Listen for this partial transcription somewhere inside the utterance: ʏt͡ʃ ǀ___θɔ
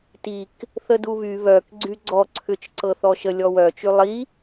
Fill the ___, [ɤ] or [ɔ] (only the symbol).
ɤ